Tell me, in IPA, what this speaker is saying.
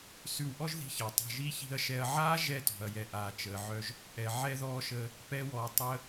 s ʉ˧ w ʔ ɔ˦ ʒ ð i̤˧ ç əː˨ tˤ a̤˧ ʒ i˦ ç i̤˧ ɐ̯ ʃ ɛ˧ ɐ̯ ʕ aː˦ ʒ ɛ˧ t ɔ̤˨ ɐ̯ j ɛ˨ ʔ aː˨ t͡ʃ əː˨ ʕ œ˧ ʒ | ʔ ɛ˨ ʕ ɛ˧ ð ɔː˧ ʃ əː˧ | p ɛ˦ w ɔː˧ tˤ əː˦

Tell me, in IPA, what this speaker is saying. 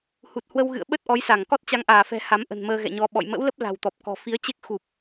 h u˨˩ t̚ h w ə˧ w ɣ ɨ̰˧˨ ə̯ ɓ ə˦˥ t̚ ʔ ɔ˨˦ j s a˧˩ ŋ k ɔ˦˥ t̚ t͡ɕ a˨˦ ŋ ʔ aː˧˩ f ɛ̤˨˩ h a˨˦ m ʔ ə̤˨˩ n m əː˧ ɣ ɛ̰˧˨ ɲ ɔ˧ ɓ ɔ̰˧˨ j m ə̰˧˥ w l ə˦˥ p̚ l a̤˨˩ w t̪ ɔ˨˩ p̚ k ɔ̤˨˩ f i˨˦ ə̯ t͡ɕ e˦˥ k̚ x u˨˩ p̚

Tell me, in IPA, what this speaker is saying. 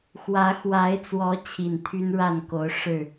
x w ä˨˦ x w a˨˦ ɪ̯ t͡s w ɔ˨˦ t͡ɕʰ i˨˩ n t̪ʰ y˦ n ɻ a˥˨ n k o˨˦ ʊ̯ ʂ ɻ̩˥˨

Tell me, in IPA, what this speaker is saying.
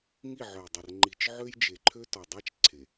ŋ i˦˨ ʕ œ˨ j dˤ ə˨ r ŋ͡ǃ i˨ t͡ʃ ʕ ø˦ j d͡ʒ e˨ ǃʰ ø˦ t ɔ˨ dˤ a˦ t͡ʃ ǀʰ e˨

